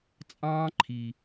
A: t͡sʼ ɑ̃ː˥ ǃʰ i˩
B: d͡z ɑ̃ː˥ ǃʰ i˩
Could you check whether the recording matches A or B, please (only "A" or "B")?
A